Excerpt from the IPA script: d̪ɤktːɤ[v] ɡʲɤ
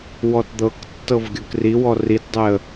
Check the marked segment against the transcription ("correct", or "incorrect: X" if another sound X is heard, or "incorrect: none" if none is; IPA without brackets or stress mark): correct